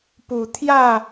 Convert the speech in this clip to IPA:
p u˨˩ t̪ʰ j ä˥˨

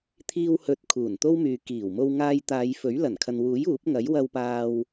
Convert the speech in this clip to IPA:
t̪ʰ iː˧ w h ɵ˨˥ t̚ kʰ uː˨˩ n t̪ o˥ w m yː˨ k iː˨˩ w m o˧ w ŋ aː˧ j t̪ aː˨˧ j f ɵ˨˥ ɥ l ɐ˨˩ n kʰ ɐ˨ n w uː˨˥ j uː˨˥ p̚ ŋ ɐ˨˥ j w ɐ˧ w p aː˧ w

